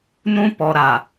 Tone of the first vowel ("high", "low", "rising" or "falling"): high